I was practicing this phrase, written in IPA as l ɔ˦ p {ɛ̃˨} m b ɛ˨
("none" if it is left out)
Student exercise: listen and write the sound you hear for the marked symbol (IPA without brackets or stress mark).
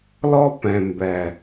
ɛ̃˨